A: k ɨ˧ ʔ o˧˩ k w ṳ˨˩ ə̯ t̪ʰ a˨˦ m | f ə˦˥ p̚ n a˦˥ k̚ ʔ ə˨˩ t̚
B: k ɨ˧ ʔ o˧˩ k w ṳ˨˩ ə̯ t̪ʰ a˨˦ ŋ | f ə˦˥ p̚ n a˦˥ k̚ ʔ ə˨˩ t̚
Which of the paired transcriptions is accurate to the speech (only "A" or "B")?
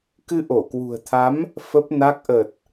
A